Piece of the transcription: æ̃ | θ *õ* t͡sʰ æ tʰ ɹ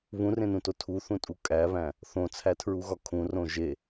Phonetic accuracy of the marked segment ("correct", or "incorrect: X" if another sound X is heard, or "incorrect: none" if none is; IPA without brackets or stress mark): correct